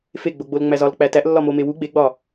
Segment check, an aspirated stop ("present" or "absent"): absent